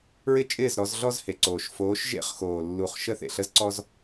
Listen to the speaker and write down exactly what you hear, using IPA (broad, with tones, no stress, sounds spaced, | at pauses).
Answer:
ɹ ɪ˦ t͡ʃʼ ɪː˦˨ z ɾ ɔ˨˦ z ɮ ɔ˦ z h e˨ ǀ oː˨ ʃ f oː˨˦ ʃ ʒ ḛ˦ χ x oː˨ lː u˨ χ ʃ ə˦ θ ḛ˨ ɬ ə˦ z ǀ ɔ˦ z